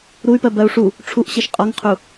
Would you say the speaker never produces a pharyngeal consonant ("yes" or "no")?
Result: yes